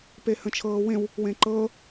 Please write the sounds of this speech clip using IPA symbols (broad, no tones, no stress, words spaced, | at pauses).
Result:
pehə̃t͡ʃʰɤːwẽw | wẽǃɤ